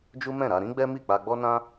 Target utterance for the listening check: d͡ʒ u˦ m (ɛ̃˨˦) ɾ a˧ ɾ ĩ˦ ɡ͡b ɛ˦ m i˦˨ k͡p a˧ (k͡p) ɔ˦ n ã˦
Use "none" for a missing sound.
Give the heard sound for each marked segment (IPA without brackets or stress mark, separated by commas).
ɛ̃˦˨, ɡ͡b